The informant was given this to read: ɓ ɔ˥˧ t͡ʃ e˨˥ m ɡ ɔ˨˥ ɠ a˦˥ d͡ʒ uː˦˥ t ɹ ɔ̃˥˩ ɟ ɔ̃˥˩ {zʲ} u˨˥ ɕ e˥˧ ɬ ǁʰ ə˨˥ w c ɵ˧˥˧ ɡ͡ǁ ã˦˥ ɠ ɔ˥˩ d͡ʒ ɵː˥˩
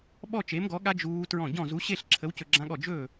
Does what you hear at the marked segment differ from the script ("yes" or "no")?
yes